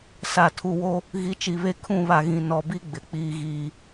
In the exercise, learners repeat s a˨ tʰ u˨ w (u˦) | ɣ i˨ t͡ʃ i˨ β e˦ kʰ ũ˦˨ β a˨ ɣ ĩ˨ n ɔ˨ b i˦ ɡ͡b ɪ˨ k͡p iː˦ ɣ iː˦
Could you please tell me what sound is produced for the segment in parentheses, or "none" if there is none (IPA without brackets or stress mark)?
o˦